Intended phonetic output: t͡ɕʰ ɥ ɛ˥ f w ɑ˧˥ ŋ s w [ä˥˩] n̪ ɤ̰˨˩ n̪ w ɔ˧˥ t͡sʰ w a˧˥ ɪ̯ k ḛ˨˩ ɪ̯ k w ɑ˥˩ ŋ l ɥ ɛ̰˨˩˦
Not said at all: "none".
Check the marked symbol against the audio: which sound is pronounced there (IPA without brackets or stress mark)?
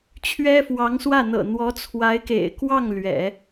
ä˥˩